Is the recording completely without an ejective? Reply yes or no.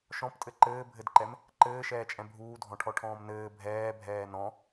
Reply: no